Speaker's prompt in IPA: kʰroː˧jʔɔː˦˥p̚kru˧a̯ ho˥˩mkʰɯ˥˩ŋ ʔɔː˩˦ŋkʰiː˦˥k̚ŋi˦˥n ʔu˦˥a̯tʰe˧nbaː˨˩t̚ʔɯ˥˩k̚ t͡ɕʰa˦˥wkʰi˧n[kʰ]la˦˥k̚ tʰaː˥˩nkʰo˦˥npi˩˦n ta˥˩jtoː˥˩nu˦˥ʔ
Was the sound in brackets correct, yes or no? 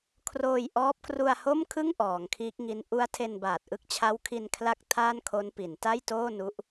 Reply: yes